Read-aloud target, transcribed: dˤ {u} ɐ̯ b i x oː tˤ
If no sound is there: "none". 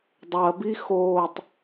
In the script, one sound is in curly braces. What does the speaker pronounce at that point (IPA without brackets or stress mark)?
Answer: o